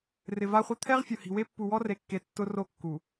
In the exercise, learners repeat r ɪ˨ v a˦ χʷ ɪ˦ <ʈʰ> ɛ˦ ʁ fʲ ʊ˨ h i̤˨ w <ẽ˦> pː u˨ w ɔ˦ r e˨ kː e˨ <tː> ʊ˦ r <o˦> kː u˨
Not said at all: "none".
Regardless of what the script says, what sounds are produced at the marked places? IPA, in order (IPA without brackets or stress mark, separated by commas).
t̪ʰ, e˦, tː, o˦